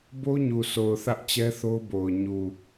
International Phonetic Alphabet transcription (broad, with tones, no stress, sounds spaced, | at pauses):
b o˦ ɲ u˨ sʰ o˨ ʊ̯ θ ä˦ ʔ t͡ɕ ɛ˦ θ o˦ ʊ̯ b o˨ ʊ̯ ɲ u˨